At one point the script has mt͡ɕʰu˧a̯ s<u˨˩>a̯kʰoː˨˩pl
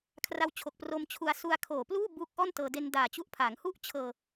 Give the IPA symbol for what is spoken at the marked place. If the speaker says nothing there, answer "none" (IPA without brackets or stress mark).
u˧